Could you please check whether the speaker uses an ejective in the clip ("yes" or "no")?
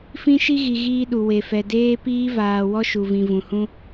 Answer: no